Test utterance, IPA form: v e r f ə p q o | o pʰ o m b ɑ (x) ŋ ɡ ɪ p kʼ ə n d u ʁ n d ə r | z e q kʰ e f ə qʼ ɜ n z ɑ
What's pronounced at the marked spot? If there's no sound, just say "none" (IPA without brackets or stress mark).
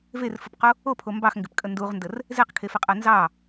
x